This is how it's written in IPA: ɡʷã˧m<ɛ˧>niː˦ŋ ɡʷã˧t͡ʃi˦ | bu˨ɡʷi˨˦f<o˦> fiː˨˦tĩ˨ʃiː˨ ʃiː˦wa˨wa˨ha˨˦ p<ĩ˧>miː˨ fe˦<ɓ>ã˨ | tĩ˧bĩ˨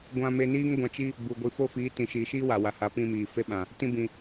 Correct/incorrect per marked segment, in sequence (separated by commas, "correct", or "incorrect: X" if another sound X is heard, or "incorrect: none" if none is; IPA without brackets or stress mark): incorrect: e˧, correct, correct, correct